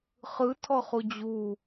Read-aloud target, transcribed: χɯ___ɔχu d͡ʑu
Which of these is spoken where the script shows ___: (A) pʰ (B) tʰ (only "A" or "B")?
B